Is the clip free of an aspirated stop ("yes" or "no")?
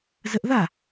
yes